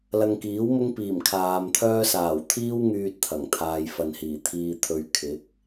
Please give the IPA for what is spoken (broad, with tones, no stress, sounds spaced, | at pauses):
l ɐ˧ ŋ k iː˨˥ w m ʊ˥ ŋ p iː˨˩ m kʰ aː˨ m t̪ʰ œː˥ s aː˨˩ w t̪ʰ iː˥ w ŋ yː˧ t̚ t̪ʰ ɐ˨˩ ŋ t̪ʰ aː˨ j f ɐ˨ n h iː˨˩ t̪ʰ iː˧ t̪ʰ ɵ˧ ɥ kʰ ɪ˨˥ k̚